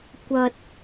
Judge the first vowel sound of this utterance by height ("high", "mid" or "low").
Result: low